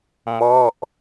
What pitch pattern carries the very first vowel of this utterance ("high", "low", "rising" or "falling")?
falling